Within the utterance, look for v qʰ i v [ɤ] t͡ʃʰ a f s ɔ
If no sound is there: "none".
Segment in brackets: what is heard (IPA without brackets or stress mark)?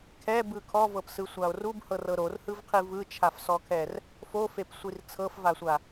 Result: ɯ